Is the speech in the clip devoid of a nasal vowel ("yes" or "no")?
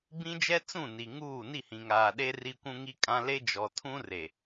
no